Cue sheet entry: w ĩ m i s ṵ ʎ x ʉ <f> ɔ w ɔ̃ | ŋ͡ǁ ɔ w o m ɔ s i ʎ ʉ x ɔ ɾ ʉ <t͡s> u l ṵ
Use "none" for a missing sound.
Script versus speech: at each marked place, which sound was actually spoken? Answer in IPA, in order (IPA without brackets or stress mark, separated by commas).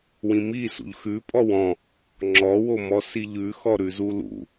pʼ, z